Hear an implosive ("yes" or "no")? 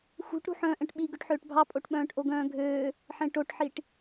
yes